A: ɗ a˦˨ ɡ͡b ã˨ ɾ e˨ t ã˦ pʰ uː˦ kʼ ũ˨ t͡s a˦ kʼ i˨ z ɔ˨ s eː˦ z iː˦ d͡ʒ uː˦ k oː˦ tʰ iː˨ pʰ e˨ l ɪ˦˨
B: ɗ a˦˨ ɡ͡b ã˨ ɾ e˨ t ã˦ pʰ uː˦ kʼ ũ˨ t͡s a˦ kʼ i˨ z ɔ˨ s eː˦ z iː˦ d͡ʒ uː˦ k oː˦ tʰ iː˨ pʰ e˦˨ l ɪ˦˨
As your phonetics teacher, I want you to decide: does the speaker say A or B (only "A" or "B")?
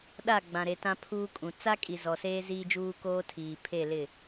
B